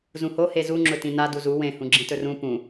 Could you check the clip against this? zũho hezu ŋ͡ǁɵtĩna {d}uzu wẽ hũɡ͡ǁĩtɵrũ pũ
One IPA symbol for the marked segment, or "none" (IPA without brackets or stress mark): d